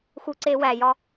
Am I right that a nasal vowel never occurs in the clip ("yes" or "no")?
yes